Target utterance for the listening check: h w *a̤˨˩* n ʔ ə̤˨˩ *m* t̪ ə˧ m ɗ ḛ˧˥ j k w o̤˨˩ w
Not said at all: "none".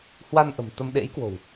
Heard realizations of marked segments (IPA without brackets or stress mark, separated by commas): a˧, m